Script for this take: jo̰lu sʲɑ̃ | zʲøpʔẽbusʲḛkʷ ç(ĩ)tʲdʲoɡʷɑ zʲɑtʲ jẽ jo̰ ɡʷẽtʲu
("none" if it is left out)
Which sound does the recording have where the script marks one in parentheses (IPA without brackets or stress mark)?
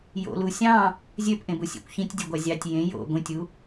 ĩ